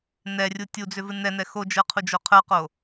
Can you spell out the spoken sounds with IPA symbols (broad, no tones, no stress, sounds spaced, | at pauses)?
n ɛ rʲ u tʲ u d͡z ʏ v ɨ n ɛ n ɛ x o d͡ʒ ə˞ qʰ u d͡ʒ o qʰ ə˞ q o